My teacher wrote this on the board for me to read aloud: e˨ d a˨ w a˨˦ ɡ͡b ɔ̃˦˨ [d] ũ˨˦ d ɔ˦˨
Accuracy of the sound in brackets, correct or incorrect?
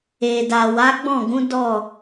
incorrect